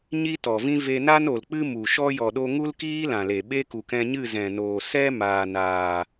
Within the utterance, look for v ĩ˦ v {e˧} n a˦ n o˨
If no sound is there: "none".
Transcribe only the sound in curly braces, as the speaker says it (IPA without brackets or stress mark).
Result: e˧